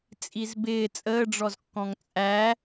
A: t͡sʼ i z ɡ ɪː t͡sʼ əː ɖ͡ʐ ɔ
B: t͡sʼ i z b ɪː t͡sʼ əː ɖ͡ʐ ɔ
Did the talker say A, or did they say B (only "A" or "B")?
B